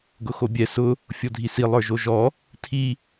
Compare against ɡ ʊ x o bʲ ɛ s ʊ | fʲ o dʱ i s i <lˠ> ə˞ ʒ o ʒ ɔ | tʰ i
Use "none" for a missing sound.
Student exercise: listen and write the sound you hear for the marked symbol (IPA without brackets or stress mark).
lˠ